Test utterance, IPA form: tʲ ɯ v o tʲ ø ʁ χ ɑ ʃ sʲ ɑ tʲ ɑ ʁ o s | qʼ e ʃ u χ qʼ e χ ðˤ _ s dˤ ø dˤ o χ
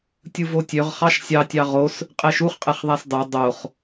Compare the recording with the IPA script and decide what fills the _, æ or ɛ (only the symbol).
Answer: æ